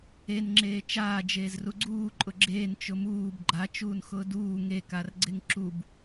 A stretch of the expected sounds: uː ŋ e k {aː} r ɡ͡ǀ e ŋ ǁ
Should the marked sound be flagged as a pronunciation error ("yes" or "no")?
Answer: yes